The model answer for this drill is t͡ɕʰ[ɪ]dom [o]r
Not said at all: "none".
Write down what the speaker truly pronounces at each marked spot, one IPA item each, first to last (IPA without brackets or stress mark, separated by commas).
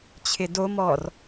ɪ, ɔ